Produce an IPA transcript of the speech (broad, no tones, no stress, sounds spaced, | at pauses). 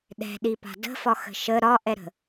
ɗ ɛ̤ ɗ i p a̤ d ə̤ f ɒ x ə̤ ʃ ə ɾ ɒ ʔ ɛ ɾ ə̤